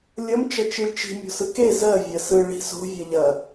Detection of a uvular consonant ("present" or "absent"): absent